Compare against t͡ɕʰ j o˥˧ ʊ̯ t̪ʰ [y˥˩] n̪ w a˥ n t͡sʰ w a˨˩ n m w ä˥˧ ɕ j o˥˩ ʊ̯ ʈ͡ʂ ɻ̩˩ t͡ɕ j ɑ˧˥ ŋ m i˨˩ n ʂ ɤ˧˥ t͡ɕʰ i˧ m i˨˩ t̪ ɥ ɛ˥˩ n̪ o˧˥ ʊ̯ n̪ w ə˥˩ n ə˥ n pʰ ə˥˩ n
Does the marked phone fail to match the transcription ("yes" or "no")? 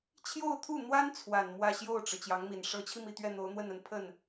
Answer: yes